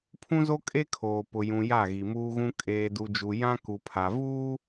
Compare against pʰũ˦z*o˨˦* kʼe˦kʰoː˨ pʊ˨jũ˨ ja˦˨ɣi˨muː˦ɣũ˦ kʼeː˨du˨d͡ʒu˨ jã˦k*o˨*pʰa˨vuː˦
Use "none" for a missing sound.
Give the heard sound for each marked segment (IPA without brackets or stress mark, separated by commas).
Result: o˦, u˨